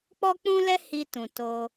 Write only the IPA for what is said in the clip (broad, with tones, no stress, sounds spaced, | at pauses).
k͡p ɔ˦ k͡p ũ˦ l ɛ˦ h i˧ t ũ˨ t o˧